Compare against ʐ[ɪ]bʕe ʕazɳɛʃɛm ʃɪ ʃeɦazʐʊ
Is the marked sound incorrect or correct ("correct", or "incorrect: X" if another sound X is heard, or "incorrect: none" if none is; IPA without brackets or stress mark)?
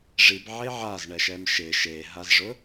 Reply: incorrect: i